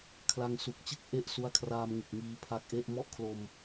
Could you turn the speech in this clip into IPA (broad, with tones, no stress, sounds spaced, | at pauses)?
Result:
kʰ l a˧ ŋ s u˨˩ k̚ t͡ɕ ɯ˥˩ k̚ ʔ e˥˩ ʔ s u˦˥ a̯ kʰ r aː˧ m ŋ ɯ˨˩ k̚ ŋ iː˧ pʰ a˦˥ k̚ ʔ e˥˩ ʔ m ɔ˥˩ ʔ kʰ l o˧ m